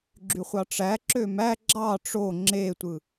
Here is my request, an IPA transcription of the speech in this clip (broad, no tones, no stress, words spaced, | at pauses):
ɡ͡ǁyχʷɑʈ͡ʂæǁø mæ ɡ͡ǁɑ ʈ͡ʂo ŋ͡ǁetʷɯ